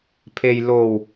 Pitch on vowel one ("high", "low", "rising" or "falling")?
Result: low